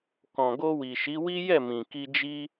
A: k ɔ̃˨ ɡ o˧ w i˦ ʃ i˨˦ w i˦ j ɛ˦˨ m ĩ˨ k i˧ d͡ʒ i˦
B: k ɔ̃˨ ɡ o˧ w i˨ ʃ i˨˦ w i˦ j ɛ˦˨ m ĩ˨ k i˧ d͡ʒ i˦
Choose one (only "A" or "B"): B